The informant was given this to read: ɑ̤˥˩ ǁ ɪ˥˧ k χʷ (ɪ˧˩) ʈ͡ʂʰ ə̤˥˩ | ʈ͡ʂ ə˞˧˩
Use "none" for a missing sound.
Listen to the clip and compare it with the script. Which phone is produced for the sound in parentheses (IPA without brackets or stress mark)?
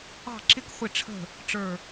ɪ˥˩